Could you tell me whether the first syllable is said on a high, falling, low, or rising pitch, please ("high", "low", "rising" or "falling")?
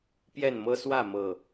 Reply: falling